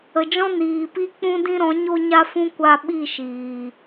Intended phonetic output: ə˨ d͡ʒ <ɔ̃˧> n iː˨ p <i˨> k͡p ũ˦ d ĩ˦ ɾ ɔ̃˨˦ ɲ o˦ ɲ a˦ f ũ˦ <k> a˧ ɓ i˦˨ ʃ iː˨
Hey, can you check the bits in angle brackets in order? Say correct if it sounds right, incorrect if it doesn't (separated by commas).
incorrect, incorrect, incorrect